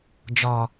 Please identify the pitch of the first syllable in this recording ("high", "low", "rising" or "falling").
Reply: low